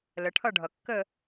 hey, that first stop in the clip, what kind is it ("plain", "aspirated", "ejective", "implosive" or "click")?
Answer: aspirated